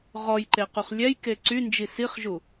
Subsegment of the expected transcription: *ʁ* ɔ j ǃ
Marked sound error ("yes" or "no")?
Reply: no